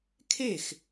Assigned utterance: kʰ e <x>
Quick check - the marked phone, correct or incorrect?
correct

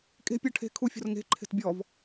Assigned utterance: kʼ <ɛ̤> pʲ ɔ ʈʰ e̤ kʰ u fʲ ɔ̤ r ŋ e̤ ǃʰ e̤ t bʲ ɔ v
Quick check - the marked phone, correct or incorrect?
incorrect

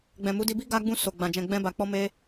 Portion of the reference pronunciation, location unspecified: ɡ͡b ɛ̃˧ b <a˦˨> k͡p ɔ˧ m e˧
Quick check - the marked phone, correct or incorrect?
incorrect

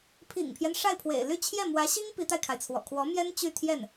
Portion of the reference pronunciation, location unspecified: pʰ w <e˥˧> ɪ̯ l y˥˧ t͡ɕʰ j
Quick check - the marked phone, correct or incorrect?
incorrect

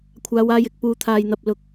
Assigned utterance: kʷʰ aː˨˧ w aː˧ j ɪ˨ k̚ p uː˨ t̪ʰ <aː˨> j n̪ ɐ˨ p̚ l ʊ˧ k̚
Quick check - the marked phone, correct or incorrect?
correct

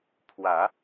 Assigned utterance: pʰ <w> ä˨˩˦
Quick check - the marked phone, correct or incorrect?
correct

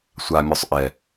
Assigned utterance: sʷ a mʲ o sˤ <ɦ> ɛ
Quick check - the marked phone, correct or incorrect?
incorrect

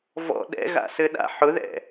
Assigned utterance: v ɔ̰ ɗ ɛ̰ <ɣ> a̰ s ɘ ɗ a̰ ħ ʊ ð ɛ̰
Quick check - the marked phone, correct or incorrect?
correct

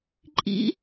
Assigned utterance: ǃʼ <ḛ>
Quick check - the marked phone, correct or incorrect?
incorrect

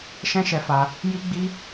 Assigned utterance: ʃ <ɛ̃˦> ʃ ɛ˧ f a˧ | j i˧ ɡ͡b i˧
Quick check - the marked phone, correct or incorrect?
correct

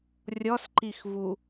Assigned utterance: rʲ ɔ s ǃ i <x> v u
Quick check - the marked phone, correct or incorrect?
correct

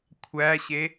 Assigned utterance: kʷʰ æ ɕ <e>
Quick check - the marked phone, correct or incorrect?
correct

